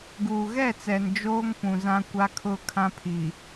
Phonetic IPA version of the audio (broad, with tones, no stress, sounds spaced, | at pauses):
ɡ uː˨ ɣ ɛ˦˨ t͡s ɛ˨ n d͡ʒ oː˦ ŋ p ũ˨ z ã˦ kʷ a˦ kʰ ʊ˦˨ kʰ ã˦ pʰ i˨